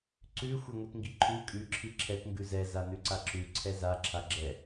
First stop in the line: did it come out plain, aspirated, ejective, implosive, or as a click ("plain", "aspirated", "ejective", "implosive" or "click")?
click